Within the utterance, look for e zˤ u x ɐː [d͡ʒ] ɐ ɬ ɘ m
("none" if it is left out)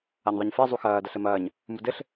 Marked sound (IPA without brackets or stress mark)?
d